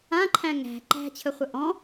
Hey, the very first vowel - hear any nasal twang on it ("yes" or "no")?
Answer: yes